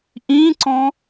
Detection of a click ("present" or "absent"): present